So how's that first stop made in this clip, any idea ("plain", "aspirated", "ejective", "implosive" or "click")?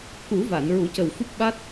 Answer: plain